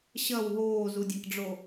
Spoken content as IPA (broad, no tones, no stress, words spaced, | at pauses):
ɕɐw ɦoːzudʲakɖ͡ʐo